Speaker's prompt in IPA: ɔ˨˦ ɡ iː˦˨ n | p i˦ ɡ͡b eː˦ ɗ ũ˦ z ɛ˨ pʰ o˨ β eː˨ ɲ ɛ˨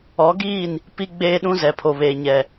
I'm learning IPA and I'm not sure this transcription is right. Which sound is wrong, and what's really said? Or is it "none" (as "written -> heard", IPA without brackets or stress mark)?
none